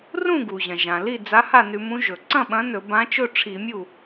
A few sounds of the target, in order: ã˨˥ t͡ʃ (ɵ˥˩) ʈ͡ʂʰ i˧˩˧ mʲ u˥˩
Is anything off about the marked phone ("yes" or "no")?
no